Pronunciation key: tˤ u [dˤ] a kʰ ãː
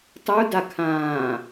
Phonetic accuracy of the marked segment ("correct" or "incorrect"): incorrect